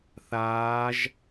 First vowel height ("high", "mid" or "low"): low